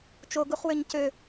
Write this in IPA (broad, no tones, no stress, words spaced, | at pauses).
t͡ʃoɡuχwøɲ cø